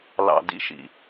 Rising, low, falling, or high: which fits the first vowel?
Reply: low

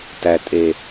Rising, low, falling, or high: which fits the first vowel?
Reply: low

